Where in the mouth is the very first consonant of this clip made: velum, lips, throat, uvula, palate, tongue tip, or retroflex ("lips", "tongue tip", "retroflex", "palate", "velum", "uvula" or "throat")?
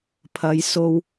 lips